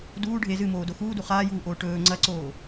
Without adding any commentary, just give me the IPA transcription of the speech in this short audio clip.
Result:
duː ɖʱe zɨmoːdo xuːdu χaːjuːʔoː ʈɵː ŋ͡ǀɐǀoː

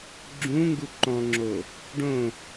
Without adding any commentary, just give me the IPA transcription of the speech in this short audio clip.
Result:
ɡ͡ǁũ ŋɡuǃɔ̃ŋ͡ǁo | ɖõ

